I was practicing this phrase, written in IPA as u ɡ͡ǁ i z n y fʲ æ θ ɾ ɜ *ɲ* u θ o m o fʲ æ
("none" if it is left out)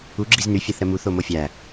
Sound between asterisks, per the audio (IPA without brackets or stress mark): m